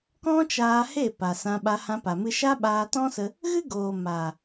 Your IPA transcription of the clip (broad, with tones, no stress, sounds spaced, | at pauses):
k ɔ̃˦ t͡ʃ aː˧ h e˦˨ p a˨ s ã˧ ɓ a˧ h ã˧ p a˨ m ɨ˧ ʃ a˦ ɓ aː˧ t ɔ̃˦ s ə˧ | ɣ ɨ˦ ɡ oː˨ m a˨